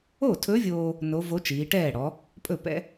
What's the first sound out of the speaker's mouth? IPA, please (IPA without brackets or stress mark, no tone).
o